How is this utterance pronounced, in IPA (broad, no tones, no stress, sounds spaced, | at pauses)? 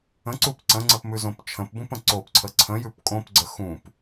ə̃ ǀ u p ǀ ə̃ ŋ͡ǀ ə p m ʉ z õ p t͡ʃʰ ə̃ p b ũ p ə̃ ǀ o p ǀʰ ə ǀʰ ə̃ j ʉ p kʼ õ p ɡ͡ǀ ə x ũ p